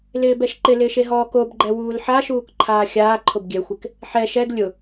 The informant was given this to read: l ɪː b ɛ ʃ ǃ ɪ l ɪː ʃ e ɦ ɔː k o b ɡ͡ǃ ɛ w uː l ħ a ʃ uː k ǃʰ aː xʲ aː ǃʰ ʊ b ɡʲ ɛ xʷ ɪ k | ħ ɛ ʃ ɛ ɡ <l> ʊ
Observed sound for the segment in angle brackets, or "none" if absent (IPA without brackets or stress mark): lʲ